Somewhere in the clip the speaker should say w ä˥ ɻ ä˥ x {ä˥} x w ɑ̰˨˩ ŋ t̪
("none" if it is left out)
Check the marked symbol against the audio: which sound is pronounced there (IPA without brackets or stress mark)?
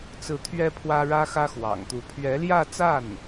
ä˥